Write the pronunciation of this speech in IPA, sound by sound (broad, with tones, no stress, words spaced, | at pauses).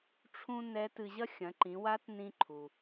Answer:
ʈ͡ʂʰũ˧ nɛ˧˥tɨ˧ʑɐ˥ xʲɐ̃˩˧ǃĩ˩˧wa˧˥t nĩ˧ǃʰu˩